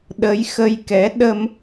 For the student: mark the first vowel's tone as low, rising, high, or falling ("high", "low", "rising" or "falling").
rising